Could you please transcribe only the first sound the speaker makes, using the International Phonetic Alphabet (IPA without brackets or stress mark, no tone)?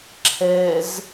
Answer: ǁʰ